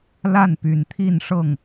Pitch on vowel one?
falling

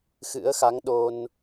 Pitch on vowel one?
rising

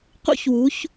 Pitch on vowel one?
high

